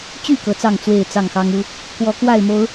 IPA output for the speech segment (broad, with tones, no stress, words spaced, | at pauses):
t͡ɕy˥˨ kɤ˨˦t͡sɑ˥˨ŋ t͡swe˥˨ɪ̯t͡sɑ˥˨ŋxɑ˦ŋu˦ | kwɔ˨˦kwa˥˨ɪ̯mo˨˦ʊ̯